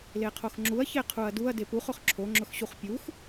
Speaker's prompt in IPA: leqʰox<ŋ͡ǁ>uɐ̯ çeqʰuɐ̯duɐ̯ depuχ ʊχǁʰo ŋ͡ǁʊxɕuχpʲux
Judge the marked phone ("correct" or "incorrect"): correct